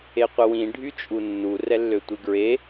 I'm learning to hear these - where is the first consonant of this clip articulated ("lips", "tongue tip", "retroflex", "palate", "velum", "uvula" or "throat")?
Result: uvula